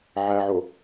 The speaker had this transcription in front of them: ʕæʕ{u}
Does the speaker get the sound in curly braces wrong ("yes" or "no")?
yes